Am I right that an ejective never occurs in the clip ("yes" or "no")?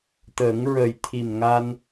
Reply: yes